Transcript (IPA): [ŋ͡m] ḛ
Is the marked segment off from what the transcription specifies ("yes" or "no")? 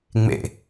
no